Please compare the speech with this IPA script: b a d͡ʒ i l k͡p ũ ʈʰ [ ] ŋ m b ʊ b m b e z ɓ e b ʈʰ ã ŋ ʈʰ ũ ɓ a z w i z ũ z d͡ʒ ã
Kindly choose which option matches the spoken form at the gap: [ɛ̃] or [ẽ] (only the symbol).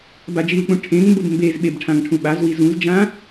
ẽ